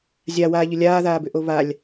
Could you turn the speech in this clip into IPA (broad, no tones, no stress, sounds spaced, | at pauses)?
zʲ a w aː ʎ ʏ lʲ aː ð aː b ʏ ʔ o β a lʲ